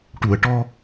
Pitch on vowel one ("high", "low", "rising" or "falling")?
low